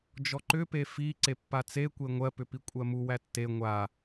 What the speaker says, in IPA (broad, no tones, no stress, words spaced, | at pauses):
d͡ʒɔǃʏpe fi ǀepːat͡sekʷe ŋʷɜpʏpi kʷʼɜmu wætːe ŋʷa